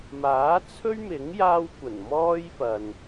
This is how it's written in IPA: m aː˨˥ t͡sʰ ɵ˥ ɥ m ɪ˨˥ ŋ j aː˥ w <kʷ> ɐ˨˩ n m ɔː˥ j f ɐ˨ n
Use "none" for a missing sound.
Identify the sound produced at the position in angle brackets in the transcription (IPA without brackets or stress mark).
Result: kʷ